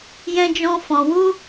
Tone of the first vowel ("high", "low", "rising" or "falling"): high